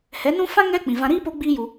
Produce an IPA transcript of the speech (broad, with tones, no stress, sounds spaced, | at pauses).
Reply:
h ɛ˨˦ n ũ˦ f ã˦ ŋ ɛ˦ k͡p ĩ˨ v ã˧ ɾ iː˦ p o˦ ɡ͡b iː˦ j u˧